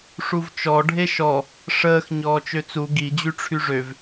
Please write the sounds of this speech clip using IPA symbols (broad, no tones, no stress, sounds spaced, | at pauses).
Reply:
ʂ u v t͡ʃ ɔ ɖʱ e ʃ ɔ | ʂ əː x ɲ ɔː t͡ʃ ø t͡s u ɡ i d͡ʑ y ʈ͡ʂʰ y ʐ ø v